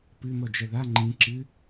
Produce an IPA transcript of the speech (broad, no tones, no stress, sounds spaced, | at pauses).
p ɨ n̪ ɔ d͡ʒ ɐ ð a ŋ͡ǃ ĩ ǁ ɨ